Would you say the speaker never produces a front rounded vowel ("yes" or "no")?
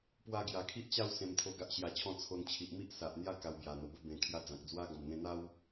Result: yes